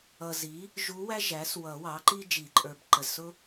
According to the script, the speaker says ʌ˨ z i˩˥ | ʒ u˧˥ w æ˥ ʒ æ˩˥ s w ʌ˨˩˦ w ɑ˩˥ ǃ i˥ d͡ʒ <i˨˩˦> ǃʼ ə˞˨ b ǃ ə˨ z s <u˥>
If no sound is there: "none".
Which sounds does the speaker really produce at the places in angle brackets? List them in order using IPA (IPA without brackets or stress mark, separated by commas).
i˨˩˦, ʊ˥